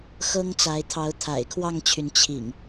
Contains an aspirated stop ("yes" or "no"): yes